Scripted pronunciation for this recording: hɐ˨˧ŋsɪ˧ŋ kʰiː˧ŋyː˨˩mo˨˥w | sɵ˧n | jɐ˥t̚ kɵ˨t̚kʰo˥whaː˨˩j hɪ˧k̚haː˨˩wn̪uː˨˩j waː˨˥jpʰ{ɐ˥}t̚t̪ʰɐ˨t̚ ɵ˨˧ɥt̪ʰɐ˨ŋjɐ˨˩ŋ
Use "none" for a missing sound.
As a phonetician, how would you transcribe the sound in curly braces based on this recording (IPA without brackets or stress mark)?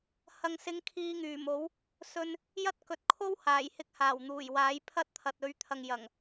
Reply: ɐ˥